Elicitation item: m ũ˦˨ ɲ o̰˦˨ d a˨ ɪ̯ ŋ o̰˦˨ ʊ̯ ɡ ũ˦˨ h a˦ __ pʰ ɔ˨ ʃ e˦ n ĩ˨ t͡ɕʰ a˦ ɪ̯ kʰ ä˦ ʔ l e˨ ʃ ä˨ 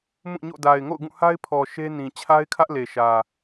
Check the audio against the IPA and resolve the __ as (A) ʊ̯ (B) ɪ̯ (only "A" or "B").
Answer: B